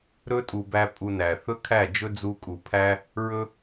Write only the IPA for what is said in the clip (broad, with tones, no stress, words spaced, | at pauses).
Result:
ɾɵ˦tʼu˨bæ˧ pʼu˧næ˨ θɵ˦kʰæ˦˨d͡ʒɵ˦ d͡zu˧kʼu˨ pʰæ˦ | ɹɵ˦